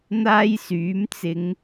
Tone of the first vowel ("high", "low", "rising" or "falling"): high